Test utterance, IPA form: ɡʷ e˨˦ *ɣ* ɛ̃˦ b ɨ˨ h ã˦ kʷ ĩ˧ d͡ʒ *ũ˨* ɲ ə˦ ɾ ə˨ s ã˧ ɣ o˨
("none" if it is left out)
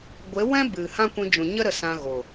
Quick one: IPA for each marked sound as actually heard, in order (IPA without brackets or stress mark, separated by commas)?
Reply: w, ũ˨